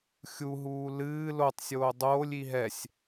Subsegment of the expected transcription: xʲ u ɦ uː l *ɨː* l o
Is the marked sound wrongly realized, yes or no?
no